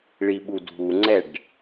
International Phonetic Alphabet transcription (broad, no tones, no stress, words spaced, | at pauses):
ɭiɓudʱuŋ͡ǀɛɖ